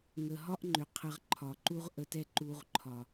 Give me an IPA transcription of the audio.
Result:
ŋə˨ɦɒ˦ʔŋ͡ǃʏ˨ qʰə˧ʁǃʰɒ˨ǃu˦ʁ ʔə˧tɛ˦ ǃu˧ʁǃʰɒ˨

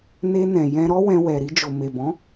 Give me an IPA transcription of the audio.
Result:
ne˧nɛ̃˨ jɛ̃˧ɾɔ˦wɛ̃˧wɛ˨ ɾi˧d͡ʒo˨me˨ bɔ̃˨˦

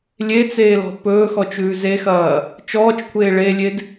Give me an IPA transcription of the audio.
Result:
lʲet͡seːlɔ̤ pɵːxɔt͡ʃʉː zexɐː | t͡ʃɔːt͡ʃkʷʰeː ɭelʲed

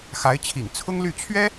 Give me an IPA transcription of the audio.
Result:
xa˧˥ɪ̯t͡ɕʰḭ˨˩ŋ t͡sʰʊ˥ŋly˥˩ t͡ɕʰɥɛ˥

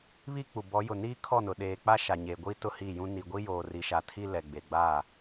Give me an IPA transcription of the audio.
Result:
βi˦k͡pu˨bɔ˨˦ jʊ˨niː˦kʰɔ˦˨nʊ˨ ɗeː˨k͡pa˦ ʃa˨ɲe˨ɡʷi˦ tʊ˦hi˦˨jũ˦ ni˨ɡʷi˦joː˨ ri˨ʃa˨tʰi˦ lɛ˨ ɡ͡be˨ɡ͡ba˦˨

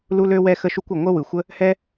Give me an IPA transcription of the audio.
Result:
lu˥lø˥wɛ˥ xə˥ʃu˥kʷɯ˩ ŋʷə˥ wɯ˩xʷə˥ | hɛ˥

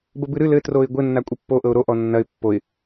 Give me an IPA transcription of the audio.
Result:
bəbɨɾɨ lɘ troɪ̯ɡʷɘ nːakʷʼɘpːo ʔɤʊ̯ɾo ʔɔnːɐɪ̯ pːoɪ̯

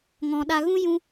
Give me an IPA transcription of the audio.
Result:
ŋɔ̃˨ɗa˧ ɣũ˦ jũ˧

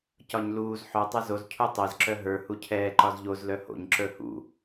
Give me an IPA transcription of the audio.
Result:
cɒɲluːz ħœ tˤɛzoz cʰutˤɛz ǁœɦə˞ hucʰɛː ǃɒzʎoz lœho̰ɲ ǁə˞hṵ

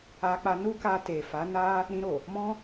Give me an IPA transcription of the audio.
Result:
a˧k͡pa˧nu˦ka˧ te˨ fa˨˦na˦ | ɾĩ˧ɾo˨ | mɔ̃˦

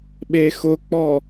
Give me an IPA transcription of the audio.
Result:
ɓexʊk͡pɔ

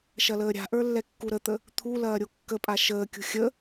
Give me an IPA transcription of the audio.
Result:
ʃɐləːɾʲa̤ʔə˞ lːɛkːuɾət̪ə | t̪ʰu lɐːɾʲokːəpʼa ʃəːkʲṳ xʲə

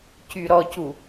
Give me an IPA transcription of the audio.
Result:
cyɾɔcu

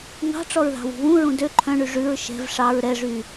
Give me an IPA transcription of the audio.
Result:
ŋɑ̤ʈ͡ʂɔɹðɑ̤wṳ βũɹũ dø ǃʰœ̃ɳy ʐʉɹ ʃɛ̤v ʂɑɹ ɾɛʐy

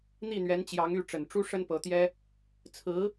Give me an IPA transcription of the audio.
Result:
n̪i˥˩n̪ɥɛ˧˥nt͡ɕjɑ˧˥ŋ y˥˩ ʈ͡ʂə˨˩nʈ͡ʂu˥ ʂə˥npɤ˧˥t̪jɛ˥ | t͡sʰɹ̩˧˥

